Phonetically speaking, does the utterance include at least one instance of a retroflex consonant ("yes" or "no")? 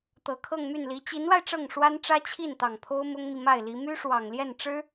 yes